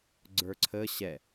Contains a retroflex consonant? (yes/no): no